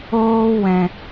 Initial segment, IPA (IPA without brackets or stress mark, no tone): oː